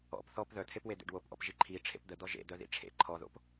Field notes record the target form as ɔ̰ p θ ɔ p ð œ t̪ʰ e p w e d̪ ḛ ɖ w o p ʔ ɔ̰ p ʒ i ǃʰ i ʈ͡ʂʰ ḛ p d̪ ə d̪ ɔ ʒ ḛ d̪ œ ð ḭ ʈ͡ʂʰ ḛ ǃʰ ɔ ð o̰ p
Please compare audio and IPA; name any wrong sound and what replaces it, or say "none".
none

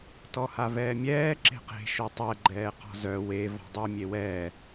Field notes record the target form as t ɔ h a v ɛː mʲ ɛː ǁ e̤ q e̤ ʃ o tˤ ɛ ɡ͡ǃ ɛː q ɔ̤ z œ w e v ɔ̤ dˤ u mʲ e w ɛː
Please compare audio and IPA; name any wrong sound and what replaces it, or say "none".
none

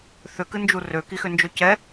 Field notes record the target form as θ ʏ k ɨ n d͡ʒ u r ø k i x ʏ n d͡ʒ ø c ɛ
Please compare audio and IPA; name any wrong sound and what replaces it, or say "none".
none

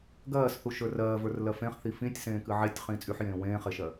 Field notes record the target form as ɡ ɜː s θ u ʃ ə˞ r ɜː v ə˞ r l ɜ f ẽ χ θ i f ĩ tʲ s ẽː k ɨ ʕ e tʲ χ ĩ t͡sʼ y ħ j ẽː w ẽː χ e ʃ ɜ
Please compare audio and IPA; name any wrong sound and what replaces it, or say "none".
none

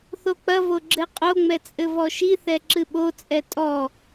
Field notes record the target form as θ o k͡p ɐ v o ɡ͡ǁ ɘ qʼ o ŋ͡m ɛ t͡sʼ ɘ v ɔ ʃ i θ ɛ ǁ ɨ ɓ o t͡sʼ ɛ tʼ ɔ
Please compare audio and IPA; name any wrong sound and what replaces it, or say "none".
none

